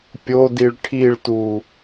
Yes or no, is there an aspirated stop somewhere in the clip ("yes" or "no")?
yes